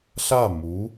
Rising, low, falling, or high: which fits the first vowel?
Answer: falling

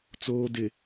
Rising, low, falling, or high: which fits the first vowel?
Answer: low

